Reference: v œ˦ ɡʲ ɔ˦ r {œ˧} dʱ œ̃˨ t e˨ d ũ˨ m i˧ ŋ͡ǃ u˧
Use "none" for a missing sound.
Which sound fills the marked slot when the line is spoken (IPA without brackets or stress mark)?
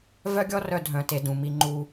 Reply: œ˧